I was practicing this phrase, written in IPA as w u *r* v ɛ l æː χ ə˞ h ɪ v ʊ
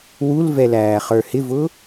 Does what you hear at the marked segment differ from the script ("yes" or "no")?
yes